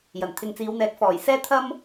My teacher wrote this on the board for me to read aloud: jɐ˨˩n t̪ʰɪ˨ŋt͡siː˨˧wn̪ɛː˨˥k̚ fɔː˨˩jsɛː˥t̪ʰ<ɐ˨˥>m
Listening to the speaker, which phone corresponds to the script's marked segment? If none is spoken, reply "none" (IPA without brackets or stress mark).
ɐ˥